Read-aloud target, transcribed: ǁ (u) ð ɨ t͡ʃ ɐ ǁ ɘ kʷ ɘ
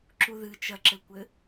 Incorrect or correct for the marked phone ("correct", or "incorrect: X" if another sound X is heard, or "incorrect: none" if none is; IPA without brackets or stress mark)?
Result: correct